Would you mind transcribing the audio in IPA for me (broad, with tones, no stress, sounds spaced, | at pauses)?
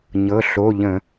ɲ ɤ˩˧˩ ɬ o˩˧˩ ʎ ə̃˧˩˧